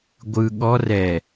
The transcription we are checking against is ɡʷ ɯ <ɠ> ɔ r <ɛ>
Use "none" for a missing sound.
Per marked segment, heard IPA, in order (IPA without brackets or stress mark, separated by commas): ɠ, ɛ